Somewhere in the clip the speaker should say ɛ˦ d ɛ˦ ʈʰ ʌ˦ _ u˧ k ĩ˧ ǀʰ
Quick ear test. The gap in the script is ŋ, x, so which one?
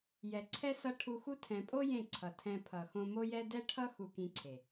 x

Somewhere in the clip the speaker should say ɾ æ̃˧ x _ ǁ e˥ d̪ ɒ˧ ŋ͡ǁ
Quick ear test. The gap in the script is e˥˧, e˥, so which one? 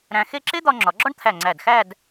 e˥˧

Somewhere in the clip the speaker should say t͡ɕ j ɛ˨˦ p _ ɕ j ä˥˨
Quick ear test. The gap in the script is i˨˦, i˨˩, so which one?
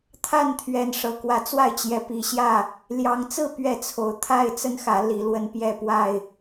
i˨˩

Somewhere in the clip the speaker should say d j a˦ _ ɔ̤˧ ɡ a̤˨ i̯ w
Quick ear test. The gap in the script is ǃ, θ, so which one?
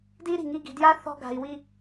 θ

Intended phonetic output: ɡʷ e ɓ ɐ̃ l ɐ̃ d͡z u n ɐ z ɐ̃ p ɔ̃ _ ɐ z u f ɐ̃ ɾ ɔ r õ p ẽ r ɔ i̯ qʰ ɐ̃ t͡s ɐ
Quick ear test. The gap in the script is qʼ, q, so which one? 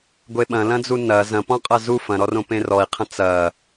qʼ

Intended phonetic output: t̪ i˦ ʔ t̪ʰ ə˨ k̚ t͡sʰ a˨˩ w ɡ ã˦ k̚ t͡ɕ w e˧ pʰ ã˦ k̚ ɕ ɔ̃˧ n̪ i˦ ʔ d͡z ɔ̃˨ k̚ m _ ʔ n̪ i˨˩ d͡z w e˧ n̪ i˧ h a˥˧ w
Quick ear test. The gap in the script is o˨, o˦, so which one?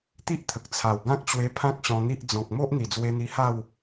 o˦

